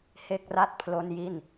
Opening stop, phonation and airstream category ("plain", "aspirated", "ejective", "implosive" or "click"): plain